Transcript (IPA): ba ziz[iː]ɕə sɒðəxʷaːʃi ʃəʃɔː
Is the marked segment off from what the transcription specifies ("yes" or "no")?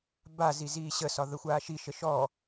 no